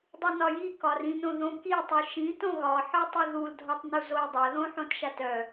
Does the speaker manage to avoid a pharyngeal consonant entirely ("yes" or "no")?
no